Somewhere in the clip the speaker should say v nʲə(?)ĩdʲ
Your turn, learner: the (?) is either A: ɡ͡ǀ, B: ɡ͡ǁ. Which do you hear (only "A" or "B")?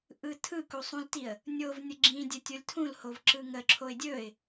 B